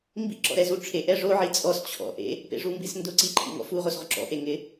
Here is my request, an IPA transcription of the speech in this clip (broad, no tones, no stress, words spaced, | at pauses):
mbḭ ǁɔ̰ɾɛzuʈ͡ʂʰe ʔɛʐo ʕit͡sʼɔs t͡ɕʰɔ̰ ʔḛ | pḛʐumbisndʊ ǀiǃʰḭŋɔ̰fu ʁosʁʊǁɔ̰ ʔeŋɪ